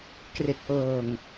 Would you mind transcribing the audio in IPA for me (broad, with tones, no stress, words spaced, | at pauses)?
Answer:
kre˨˩k̚ʔɤː˨˩ŋ